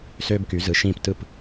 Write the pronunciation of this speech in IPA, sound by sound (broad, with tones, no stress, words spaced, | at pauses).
søː˧bky˩˧ zɯ˩˧ ʃĩː˧˩p tɯ˧˩p